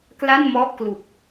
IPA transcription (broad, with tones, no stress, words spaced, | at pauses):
kla˥˩nmɔ˦˥ʔklu˨˩k̚